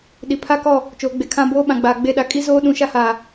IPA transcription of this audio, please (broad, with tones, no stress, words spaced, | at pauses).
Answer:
ɗi˨pʰa˦kɔ˦˨ | t͡ʃoː˨ɡ͡be˨ kʰã˦ boː˦ɓã˨ɡ͡baː˨ ɡ͡be˦˨ɗa˦ kʼi˦zoː˦ ɗũ˨˦ʃa˦haː˨